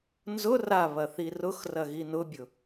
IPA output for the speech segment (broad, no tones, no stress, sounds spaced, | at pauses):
n z ʊ r a β ɐ θ i r ʊ x r ɐ ɣ i n ʊ bʲ ʊ